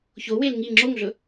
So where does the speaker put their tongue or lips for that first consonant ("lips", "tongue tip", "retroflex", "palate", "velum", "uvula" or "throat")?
palate